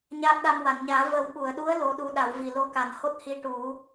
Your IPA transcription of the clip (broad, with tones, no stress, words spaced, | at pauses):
ɲaː˦˥k̚ɗa˧m wa˨˩˨nɲaː˨˩˦ və˨˩˦wɓu˨˩˨ə̯ɗu˧˥ə̯ lo˧˥ɗu˧˥ ɗa˨˩˦wvi˨˩ lo˧ka˨˩nho˦˥t̚ hi˧ʈu˨˩˦